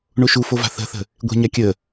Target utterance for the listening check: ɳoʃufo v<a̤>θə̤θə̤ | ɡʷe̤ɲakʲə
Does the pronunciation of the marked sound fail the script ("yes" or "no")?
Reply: no